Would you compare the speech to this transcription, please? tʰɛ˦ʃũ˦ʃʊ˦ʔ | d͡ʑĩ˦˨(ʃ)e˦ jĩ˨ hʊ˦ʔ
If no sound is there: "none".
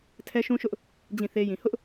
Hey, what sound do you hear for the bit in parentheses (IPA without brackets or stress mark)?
θ